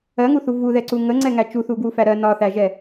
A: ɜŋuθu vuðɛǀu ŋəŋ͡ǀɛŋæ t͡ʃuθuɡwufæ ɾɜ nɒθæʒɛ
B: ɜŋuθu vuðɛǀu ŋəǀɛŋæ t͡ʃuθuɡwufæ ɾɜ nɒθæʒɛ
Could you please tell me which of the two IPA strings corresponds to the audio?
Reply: A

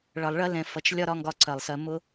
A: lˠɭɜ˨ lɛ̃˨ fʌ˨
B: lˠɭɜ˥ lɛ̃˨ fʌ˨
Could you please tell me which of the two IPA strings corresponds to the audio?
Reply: B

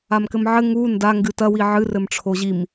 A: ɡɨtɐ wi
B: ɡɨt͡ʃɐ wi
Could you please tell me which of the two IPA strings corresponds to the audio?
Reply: A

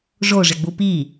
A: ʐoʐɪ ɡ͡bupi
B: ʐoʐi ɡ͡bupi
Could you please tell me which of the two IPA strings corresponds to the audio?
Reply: A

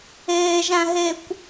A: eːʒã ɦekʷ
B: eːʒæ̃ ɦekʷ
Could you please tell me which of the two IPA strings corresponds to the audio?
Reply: B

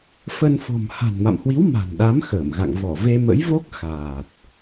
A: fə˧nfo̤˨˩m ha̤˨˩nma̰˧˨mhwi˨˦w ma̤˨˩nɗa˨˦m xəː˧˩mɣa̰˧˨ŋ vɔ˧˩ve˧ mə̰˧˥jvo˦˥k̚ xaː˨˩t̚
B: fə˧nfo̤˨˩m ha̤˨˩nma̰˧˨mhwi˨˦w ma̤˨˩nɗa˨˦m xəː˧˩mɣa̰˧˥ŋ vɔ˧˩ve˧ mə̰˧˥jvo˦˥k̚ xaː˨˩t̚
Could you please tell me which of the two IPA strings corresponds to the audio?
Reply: A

